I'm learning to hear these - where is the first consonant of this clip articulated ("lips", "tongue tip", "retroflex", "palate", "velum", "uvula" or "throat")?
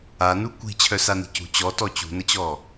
tongue tip